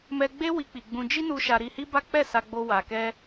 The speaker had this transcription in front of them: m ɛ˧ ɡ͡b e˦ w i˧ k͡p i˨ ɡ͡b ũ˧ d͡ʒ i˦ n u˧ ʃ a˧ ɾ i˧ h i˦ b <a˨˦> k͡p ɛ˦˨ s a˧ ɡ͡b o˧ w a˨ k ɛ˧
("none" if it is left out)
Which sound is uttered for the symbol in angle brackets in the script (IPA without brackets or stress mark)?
a˦